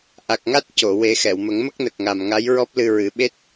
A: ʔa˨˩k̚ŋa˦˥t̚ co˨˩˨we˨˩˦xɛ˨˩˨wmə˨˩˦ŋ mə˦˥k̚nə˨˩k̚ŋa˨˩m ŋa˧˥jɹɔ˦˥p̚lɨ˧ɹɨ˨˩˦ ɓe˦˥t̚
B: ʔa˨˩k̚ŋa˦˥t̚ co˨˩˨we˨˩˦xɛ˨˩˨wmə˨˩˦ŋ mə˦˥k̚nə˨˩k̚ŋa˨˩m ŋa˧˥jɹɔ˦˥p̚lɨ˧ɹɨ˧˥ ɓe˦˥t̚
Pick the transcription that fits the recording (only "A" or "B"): A